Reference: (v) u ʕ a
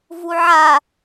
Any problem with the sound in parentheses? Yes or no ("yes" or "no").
no